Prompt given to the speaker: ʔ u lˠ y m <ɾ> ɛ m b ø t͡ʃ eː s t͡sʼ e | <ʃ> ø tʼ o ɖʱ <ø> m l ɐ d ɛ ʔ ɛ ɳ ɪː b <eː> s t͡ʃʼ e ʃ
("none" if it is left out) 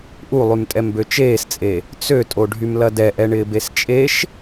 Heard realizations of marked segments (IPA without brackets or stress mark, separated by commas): tʼ, t͡s, y, e